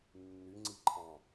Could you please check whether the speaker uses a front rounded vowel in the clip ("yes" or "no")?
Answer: yes